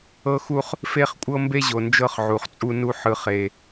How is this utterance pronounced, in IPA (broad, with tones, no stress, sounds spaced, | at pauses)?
ɤ˦ x u˦ χ | f e˦ χ kʷʼ ɤ˦ m b e˦ ʑ o˨ n d͡ʒ ɤ˦ χ ʕ u˨ χ t͡sʼ u˦ n u˦ ħ ɯ˨ χ e˨